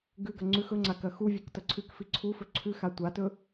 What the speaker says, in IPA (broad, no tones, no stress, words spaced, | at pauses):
ɡʉɡɐ ŋ͡ǀʉx ɵŋ͡ǀa kɐxuvʲuk tɐǀʰʉkfi ǀʰufɵ ǀʰʉxa tʷatɵ